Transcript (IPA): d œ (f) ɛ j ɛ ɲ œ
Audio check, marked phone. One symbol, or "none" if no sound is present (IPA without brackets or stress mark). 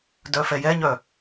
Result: f